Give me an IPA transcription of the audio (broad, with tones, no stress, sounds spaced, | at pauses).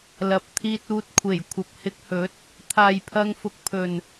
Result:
l ɐ˨ p̚ t̪ʰ iː˧ t̚ uː˧ t̚ kʷʰ e˨˩ j kʷʰ ɐ˨ p̚ h ɪ˧ k̚ h ɵ˨˥ t̚ | t̪ʰ aː˨ j pʰ ɐ˧ ŋ f ʊ˨ k̚ pʰ ɵ˨ n